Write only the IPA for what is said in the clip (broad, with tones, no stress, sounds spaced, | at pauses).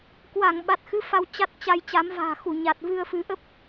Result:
k w a˧˩ ŋ ɓ a˨˩ t̚ x ɨ˨˦ f a˧ w t͡ɕ a˦˥ t̚ t͡ɕ a˧ j t͡ɕ a˨˦ m v a̤ː˨˩ x u˧˩ ɲ a˨˩ t̚ v ɨ˧ ə̯ f ɨ˨˦ ʔ ə˦˥ p̚